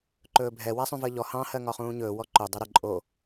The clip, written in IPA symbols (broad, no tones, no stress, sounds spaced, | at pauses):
ǃ ɵː bʱ ɛ w a sˤ ũ v əː ʎ ɔ h ɑ̃ h ɜ ŋ ɒ χ ũː ɲ ɵː w ɔ ǃ ɵ dˤ ɛ ɾ ə ǃʼ o